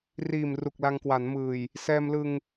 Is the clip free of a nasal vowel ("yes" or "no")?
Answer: yes